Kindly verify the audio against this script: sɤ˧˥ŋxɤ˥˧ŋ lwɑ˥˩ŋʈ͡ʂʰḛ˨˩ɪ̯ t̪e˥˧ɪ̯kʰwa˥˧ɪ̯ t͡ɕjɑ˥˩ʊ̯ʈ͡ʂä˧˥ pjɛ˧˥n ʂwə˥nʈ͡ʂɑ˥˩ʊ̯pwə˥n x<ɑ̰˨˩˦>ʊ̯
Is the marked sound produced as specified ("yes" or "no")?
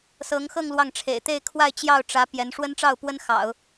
yes